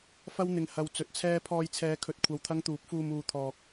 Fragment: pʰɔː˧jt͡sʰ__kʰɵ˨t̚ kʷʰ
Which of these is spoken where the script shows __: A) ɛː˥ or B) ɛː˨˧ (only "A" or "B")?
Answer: B